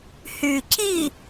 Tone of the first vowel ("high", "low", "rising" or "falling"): low